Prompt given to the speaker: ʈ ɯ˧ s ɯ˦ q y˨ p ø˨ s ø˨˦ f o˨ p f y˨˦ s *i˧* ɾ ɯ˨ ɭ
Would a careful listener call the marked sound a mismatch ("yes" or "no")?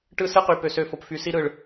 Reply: no